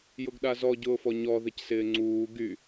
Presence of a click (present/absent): present